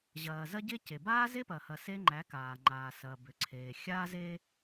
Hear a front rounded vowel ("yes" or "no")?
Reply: yes